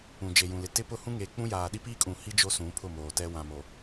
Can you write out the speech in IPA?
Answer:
ũ˨ d͡ʒ e˨ j ũ˨ l ɪ˨ t ɪ˦ p ʊ˦ h ũ˦ ŋ eː˨ k͡p ũ˦ j aː˨ ɗ i˦ p iː˦ kʼ ũ˨ h i˦ d͡ʒ o˦ s ũ˨˦ pʰ ʊ˦˨ m oː˨ t ɛ˦ w ã˨ m o˨

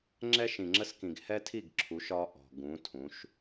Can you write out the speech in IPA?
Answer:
ŋ͡ǁ ɛ˦ ʃ ĩ˨ ŋ͡ǁ ə˦ s k ĩ˨ ɡ h ɛ˦ tʰ i˦˨ ɡ ǁʰ u˨˦ ʃ ɒ˦ ʔ ɔ̤˨ ɡ ũ˨˦ tʰ ũ˨˦ ʃ

